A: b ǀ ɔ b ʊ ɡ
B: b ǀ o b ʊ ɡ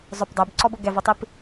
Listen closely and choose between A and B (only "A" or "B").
A